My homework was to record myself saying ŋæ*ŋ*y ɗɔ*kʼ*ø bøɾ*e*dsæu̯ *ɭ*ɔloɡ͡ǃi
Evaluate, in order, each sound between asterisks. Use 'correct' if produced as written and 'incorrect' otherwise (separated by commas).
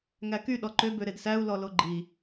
incorrect, incorrect, correct, incorrect